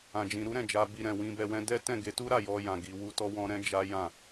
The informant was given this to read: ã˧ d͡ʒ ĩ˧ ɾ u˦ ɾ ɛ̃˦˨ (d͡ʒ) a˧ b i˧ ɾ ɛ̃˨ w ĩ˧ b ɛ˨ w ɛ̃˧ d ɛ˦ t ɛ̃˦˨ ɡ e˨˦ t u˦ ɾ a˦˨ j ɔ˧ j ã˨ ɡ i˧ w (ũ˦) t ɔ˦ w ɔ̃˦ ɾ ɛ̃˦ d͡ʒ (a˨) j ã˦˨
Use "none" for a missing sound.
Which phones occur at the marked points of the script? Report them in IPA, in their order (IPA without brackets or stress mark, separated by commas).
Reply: d͡ʒ, u˦, a˦